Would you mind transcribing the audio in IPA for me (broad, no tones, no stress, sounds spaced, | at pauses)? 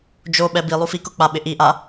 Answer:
d͡ʒ o ɓ ɛ b i lˠ u f i k ʊ k͡p a ɓ ɪ ʔ i ʔ a